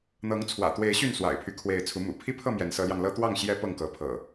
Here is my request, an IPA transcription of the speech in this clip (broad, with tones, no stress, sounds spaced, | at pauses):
n̪ ɤ˨˦ ŋ t͡sʰ w ä̰˨˩ t̪ w e˨˦ ɪ̯ ɕ y˥˨ n s w a̰˨˩ ɪ̯ pʰ y˦ kʰ w e˨˦ ɪ̯ t͡sʰ u˨˦ m ṵ˨˩ pʰ i˦ pʰ ɤ˥˨ m j ɛ˨˦ n s ɤ˨˦ l j ɑ˧ ŋ l ɤ˦ t̪ w ɑ˥˨ ŋ ɕ j ɛ˦ p ɤ˥˨ ŋ k ɤ˨˦ pʰ ɤ̰˨˩